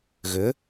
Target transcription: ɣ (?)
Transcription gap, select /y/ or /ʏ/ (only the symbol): ʏ